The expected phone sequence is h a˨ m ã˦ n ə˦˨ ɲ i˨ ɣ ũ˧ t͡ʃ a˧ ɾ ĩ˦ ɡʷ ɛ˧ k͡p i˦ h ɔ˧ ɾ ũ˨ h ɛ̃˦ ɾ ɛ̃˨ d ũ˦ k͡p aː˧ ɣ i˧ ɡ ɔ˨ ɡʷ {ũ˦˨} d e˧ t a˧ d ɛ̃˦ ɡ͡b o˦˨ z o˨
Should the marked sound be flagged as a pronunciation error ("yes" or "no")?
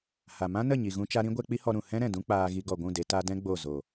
no